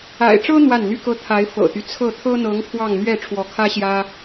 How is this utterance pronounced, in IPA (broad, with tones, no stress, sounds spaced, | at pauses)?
a̰˨˩ ɪ̯ ʈ͡ʂ ɤ˥ n̪ w a˥˩ n n̪ y˥ k ɤ˥ t̪ʰ a˧˥ ɪ̯ f ɤ̰˨˩ t̪ y˦ t͡sʰ ɤ˥˩ t̪ʰ ɤ˥ n̪ ɤ˧˥ ŋ pʰ w ɑ˥˧ ŋ n̪ ɥ ɛ˥˩ ʈ͡ʂʰ w ɔ˧˥ kʰ ä˥ ɕ j ä˥